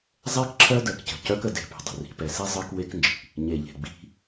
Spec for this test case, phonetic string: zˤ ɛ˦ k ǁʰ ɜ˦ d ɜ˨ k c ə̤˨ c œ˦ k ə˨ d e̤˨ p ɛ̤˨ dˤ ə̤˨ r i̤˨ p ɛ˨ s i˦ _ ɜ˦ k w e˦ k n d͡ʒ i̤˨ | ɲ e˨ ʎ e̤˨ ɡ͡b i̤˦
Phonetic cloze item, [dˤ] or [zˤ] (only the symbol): zˤ